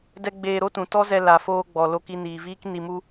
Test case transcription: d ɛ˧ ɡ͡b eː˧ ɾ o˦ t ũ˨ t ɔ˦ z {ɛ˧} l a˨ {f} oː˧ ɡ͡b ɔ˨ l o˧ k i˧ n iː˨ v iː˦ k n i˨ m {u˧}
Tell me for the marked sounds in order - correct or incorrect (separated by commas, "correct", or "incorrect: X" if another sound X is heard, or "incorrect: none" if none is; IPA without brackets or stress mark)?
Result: correct, correct, correct